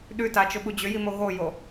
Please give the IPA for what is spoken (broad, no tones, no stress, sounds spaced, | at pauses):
ɗ ʉ t a t͡ʃ ʊ ɓ u d͡ʑ ʏ j i m o ɣ o j o